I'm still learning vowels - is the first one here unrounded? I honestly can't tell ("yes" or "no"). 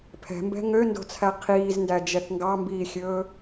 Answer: yes